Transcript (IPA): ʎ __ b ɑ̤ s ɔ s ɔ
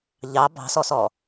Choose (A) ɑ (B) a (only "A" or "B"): A